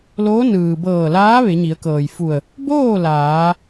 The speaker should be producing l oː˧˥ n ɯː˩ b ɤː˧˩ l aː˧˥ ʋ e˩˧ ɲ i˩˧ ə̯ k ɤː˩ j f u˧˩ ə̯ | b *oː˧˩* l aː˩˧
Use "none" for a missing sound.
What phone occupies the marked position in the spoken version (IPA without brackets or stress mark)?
oː˥˨